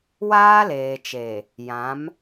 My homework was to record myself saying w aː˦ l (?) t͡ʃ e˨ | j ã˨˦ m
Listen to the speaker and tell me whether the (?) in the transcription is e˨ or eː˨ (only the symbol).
eː˨